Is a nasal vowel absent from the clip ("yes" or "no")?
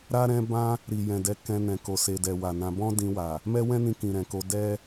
no